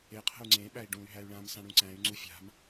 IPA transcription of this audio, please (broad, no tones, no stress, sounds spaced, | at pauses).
e qʰ ə̤ u̯ ŋ͡ǀ ẽ ɓ æ i̯ ɖ ũ y̯ ɦ æ y̯ ɭ ã m s ã ɽ ũ ǀ æ̃ y̯ ŋ͡ǀ u fʲ a̤ m